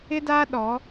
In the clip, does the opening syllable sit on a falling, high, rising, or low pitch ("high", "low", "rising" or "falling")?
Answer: high